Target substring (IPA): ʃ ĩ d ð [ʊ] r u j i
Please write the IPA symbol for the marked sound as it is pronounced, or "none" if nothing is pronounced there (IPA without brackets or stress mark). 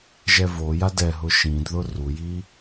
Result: ʊ